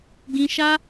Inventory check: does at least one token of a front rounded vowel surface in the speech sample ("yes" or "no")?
no